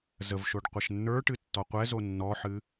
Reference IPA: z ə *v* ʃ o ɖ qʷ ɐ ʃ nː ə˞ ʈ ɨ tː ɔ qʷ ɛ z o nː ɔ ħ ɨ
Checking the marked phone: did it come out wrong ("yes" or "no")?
no